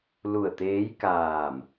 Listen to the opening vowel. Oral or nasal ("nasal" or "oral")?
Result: oral